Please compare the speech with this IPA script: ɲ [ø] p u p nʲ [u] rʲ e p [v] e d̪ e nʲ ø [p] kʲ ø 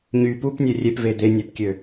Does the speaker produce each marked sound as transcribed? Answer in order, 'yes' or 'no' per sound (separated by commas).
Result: no, no, yes, yes